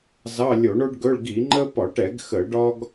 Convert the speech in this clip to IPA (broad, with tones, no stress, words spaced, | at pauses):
zɑ˧˥˧lʲo˧˩˧ɳo˥ɖɡɵ˧˥˧ɭ ɡi˧˩˧ŋ͡ǃə˥ pɒ˧˩˧ʈɛ˧˩˧ɡ xə˧˩˧ɖɒ˥ɡ